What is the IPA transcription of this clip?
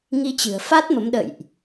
ŋ i˧ t͡ɕ ɨ̤˨˩ ə̯ f a˦˥ t̚ m ə˨˦ m ɗ ə̰˧˨ j ʔ

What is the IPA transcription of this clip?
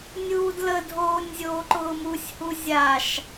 nʲ uː d l ə dʱ oː nʲ zʲ oː ǃ ʊː m u sʲ h u zʲ a ʃ

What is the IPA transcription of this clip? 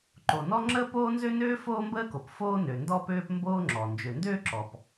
ǃ o˩ n ɔ˥ ŋ͡ǁ əː˥ p oː˥ n z ø˥ n øː˥ f oː˥ m b əː˥ k o˩ p f oː˥ n ø˩ n d ɔ˥ p øː˥ p m b oː˥ ŋ͡ǁ ɔ˩ n d͡ʒ ø˩ n d øː˥ ǁ ɔ˩ p

